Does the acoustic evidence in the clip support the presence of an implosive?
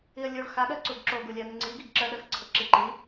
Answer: yes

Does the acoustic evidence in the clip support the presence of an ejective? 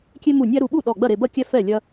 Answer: no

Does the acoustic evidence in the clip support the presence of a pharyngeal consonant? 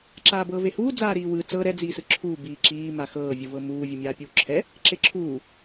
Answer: no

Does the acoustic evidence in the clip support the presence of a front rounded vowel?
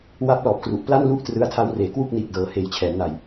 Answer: no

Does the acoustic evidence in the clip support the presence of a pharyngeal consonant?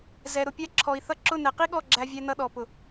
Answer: no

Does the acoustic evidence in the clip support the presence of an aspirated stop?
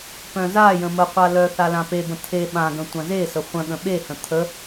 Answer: yes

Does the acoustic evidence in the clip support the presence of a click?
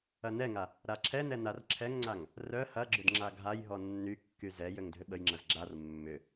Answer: yes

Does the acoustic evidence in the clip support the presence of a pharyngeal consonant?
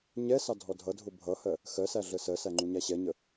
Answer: no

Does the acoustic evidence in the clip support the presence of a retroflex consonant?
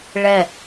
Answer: yes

